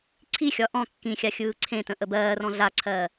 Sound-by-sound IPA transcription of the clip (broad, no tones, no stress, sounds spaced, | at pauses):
ǀʰ i xʲ ɒ ʔ ɔ̃ kː ĩ xʲ a xʲ ɯː ǀʰ ẽ t ə̃ ʔ ə b ɜː r ɔ̃ ɮ a ǀʰ ɜː